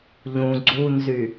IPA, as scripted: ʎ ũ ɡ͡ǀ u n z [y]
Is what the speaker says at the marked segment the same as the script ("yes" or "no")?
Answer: yes